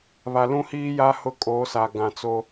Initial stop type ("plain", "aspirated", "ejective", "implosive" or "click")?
ejective